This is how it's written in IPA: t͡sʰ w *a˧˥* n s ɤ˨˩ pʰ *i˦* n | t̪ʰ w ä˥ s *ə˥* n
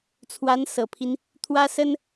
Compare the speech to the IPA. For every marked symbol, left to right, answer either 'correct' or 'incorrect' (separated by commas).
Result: correct, correct, correct